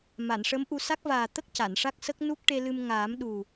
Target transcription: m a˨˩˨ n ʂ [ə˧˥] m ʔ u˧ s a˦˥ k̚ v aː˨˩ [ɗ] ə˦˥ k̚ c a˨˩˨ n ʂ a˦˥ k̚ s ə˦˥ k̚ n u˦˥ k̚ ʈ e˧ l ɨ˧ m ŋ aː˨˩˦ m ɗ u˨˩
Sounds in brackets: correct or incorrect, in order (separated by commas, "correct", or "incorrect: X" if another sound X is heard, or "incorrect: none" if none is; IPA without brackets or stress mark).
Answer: correct, incorrect: t̪